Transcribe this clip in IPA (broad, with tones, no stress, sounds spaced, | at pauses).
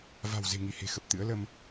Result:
v a̤˨˩ w z e̤˨˩ ŋ i˧˩ h e̤˨˩ x ə˨˩ p̚ t̪ ɨ̰˧˥ ə̯ l ə˧ m